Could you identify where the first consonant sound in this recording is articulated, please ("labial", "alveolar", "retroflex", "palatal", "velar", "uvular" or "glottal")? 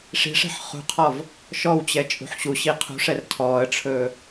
retroflex